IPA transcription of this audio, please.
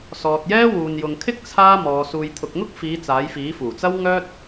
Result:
s ɔː˨ t̚ j ɛː˥ w uː˨ n j ʊ˨ ŋ kʰ ɪ˥ k̚ t͡sʰ aː˥ m ɔː˧ s uː˨ j t̪ʰ ʊ˨ k̚ ŋ ʊ˥ k̚ f iː˨˧ t͡s aː˨˥ j f iː˨˥ f uː˨˩ t͡s ɐ˥ w ŋ œː˥ t̚

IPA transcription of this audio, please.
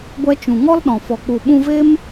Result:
ɡʷ ɛ˧ t͡ʃ ũ˨ ŋ ɔ˦ l ɗ ɔ̃˨ f ɔ˨ k͡p u˨ ɓ ũ˧ v e˦ m

